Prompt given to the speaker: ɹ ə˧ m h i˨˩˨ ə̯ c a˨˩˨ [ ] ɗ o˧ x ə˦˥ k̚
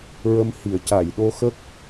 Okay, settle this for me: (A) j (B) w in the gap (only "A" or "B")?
A